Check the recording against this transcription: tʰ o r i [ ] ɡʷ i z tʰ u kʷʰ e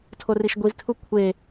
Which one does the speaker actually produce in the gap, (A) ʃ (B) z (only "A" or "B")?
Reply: A